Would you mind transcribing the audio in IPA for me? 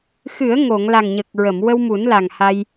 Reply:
xɨ˨˩˦ə̯ŋo˨˩˨ŋ la˨˩ŋɲə˨˩k̚ ɹə˨˩˨mwə˧wmu˨˩˦nla˨˩ŋ ha˧j

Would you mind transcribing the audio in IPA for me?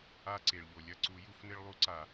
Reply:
a˦ǀe˩ɭ ʎo˩lʲɐ˦˨ǀu˨˩˦ ju˨˩˦fnɘ˦ɭ lˠu˦ǀa˨˩˦

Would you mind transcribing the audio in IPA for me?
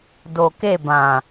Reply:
do˨ke˦˨bã˨

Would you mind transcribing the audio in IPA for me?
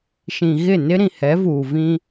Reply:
ʃĩ˨ɣɪ˦˨nɪ˦ ɾĩ˨hɛ˨˦vuː˨vĩ˦

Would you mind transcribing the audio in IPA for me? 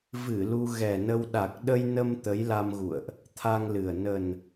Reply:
vɨ˧˩ lu˧ ɣɛ˨˩nə˧w ɗa˨˩k̚ɗə˧jnə˧m t̪ə˨˦jla˧mɣṵ˧˨ə̯ʔ | t̪ʰa˧ŋlɨ˨˩ə̯ nə˨˩n

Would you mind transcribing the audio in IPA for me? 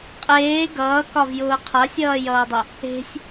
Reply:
qʼeː ɡʌːkɒvjʊː qʰasʲʌːjʌːdˤʊ | e̤sʲ

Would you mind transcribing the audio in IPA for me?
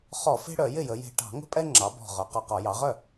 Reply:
χɔ˧˩˧fe̤˦ɽœ˧˩˧ jɪ˥˩jə˩˧je̤˨˩ ʈɑ̤˧˩˧ŋə̤˦pʼɛ˦ ŋ͡ǁɑ˩˧bɔ̤˨˩ ʁœ˩˧qɒ˨˩qɒ˧˩˧ jɑ˩˧ʁœ˥˩

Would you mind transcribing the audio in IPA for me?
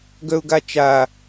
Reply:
ɡœʊ̯ɡat͡ʃa

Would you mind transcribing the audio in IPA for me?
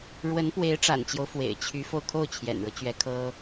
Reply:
ɻwə˧˥npwe˧˥ɪ̯ʈ͡ʂa̰˨˩nt͡ɕjo˦ʊ̯ fwḛ˨˩ɪ̯t͡ɕʰy˧˥fo˧ʊ̯ kʰo˥˩ʊ̯t͡ɕʰjɛ̰˨˩nɻɤ˦t͡ɕɥɛ˧˥ kʰɤ˥

